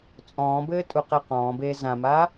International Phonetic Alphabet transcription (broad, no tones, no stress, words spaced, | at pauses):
t͡sʼɔ̃ːbɘː tʼuqeqɔ̃ːbeː zãmaː